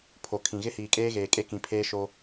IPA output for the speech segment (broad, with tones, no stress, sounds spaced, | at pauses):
pʰ o˨ kʰ ĩ˨ ɣ ɪ˦ h iː˨ kʼ eː˦ ɣ eː˨ kʼ e˦ k ĩ˨ pʰ eː˦ ʃ o˦